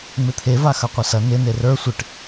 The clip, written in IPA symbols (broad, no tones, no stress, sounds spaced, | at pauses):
ŋ͡m ɪ t̪ʰ e v a x ɐ qʷ ɐ s ɐ n ɪ n e r ə˞ sʷ ɪ ʈ